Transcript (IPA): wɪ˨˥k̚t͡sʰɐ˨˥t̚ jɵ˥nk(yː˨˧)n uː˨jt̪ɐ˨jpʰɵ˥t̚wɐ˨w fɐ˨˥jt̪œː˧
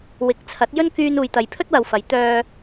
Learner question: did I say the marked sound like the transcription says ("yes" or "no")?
no